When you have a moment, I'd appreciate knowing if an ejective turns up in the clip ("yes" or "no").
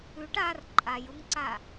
yes